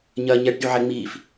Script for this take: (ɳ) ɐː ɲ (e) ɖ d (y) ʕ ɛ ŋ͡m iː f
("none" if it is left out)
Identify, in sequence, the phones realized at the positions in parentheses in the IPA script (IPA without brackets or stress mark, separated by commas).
ɲ, ɛ, y